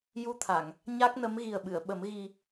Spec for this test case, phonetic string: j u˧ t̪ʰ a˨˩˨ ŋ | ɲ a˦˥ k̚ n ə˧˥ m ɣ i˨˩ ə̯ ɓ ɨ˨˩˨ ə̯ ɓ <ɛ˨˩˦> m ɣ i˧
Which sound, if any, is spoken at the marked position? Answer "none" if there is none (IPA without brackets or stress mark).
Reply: ə˨˩˦